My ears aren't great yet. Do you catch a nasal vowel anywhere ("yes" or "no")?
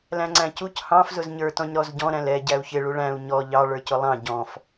yes